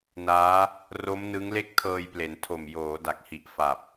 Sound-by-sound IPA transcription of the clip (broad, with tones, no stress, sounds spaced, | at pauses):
n aː˦˥ | r o˦˥ m n ɯ˦˥ ŋ l e˥˩ k̚ tʰ ɤː˧ j p l e˩˦ n tʰ o˨˩ m j oː˩˦ d a˨˩ k̚ h i˨˩ ʔ f a˨˩ p̚